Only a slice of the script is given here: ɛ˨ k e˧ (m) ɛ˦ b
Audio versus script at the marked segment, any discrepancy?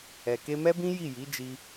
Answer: no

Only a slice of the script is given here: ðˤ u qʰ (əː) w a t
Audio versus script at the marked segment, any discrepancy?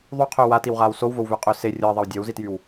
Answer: yes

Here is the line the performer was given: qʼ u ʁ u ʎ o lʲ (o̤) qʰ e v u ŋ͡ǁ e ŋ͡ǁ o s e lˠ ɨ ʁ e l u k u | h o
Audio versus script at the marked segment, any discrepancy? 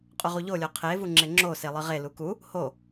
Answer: yes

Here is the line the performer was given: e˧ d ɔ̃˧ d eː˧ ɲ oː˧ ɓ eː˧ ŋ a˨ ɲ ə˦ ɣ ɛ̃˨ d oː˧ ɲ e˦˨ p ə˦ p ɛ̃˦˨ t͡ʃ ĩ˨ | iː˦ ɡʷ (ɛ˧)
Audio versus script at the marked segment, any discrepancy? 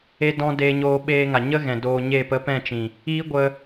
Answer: yes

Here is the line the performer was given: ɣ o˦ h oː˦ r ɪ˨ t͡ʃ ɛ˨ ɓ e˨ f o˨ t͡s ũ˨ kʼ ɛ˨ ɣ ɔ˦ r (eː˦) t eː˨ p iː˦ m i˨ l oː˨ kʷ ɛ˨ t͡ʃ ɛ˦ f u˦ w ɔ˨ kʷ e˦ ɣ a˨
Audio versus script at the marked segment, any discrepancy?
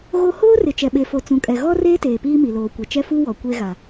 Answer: no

